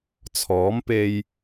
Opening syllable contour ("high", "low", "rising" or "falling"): rising